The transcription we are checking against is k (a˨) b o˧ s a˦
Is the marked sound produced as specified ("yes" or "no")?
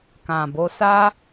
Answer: no